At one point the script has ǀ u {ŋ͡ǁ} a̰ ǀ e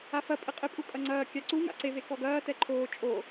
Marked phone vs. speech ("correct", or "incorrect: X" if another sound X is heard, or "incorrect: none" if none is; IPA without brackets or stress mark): incorrect: ŋ